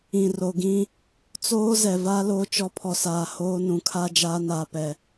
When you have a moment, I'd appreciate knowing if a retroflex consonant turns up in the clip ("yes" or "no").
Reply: no